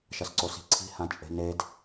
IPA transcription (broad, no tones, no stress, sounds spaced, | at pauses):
ʃ ɐ s ǀ o s i̤ ǀʰ i̤ h ã t͡ʃʼ e̤ n e d